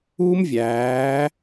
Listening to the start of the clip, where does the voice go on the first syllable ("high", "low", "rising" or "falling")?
high